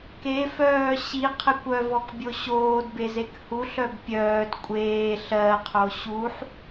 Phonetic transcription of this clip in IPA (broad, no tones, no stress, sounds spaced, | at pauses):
k e f œː ɕ i qʰ e kʷ œ v ɔ k bʲ o ɕ oː d b e z e k h u ɬ œ b pʲ œː d kʷʼ eː ɬ ɜ qʰ o ɕ u ħ